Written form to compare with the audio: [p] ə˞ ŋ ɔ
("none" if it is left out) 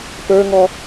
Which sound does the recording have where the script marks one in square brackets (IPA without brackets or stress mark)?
p